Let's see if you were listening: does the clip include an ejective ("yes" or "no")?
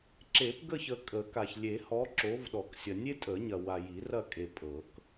yes